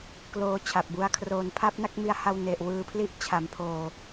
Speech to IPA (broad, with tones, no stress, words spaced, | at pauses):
kloː˧t͡ɕʰa˨˩p̚bu˧a̯ kʰroː˩˦npʰa˦˥p̚na˥˩k̚mi˧a̯ ha˧wne˨˩ʔ wɯː˧pʰli˦˥ʔ t͡ɕʰa˩˦m pʰoː˧